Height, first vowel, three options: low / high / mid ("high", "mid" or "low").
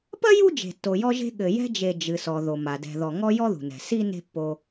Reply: low